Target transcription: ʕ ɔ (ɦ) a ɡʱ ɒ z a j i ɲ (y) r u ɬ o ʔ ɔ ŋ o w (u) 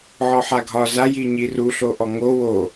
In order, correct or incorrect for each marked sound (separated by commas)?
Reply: incorrect, incorrect, incorrect